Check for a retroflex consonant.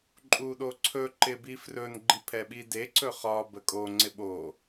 absent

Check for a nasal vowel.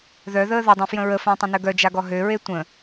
present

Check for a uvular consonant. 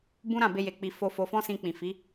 absent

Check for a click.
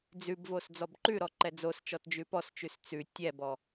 present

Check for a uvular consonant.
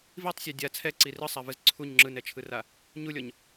absent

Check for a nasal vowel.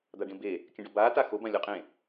present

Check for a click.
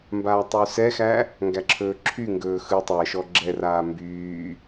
present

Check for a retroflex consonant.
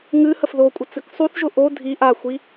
absent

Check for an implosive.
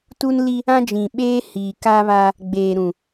present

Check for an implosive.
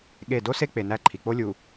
present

